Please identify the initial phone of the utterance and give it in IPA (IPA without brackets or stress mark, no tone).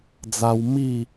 d͡z